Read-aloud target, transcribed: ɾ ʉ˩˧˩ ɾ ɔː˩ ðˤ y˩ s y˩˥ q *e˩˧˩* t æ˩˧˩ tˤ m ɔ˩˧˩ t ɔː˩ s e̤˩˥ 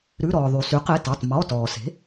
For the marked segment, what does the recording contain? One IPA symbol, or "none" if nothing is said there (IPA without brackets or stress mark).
e˩˧˩